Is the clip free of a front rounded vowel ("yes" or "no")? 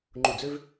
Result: no